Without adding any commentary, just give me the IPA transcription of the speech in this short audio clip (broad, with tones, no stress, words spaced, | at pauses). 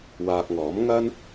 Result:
waː˧k̚ŋɔː˨˥m ŋɐ˥n